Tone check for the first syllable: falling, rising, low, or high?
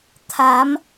rising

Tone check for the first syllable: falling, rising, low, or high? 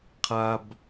low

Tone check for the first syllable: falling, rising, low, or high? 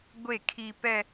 falling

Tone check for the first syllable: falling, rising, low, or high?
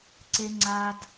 high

